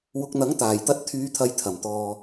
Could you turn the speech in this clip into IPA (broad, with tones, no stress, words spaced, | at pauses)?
wʊ˧k̚n̪ɐ˨˥ŋ t̪aː˨˩jt̪ɐ˧t̚t̪ʰyː˨˧t̪ʰɐ˨˧j t̪ʰɐ˨˩mt̪ɔː˨